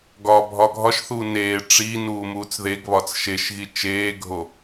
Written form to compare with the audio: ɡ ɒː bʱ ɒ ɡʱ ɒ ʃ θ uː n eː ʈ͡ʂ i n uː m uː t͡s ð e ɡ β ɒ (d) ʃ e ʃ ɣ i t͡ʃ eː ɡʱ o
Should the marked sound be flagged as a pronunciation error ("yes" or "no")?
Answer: yes